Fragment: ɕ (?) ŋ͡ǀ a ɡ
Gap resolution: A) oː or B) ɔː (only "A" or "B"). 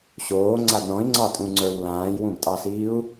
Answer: A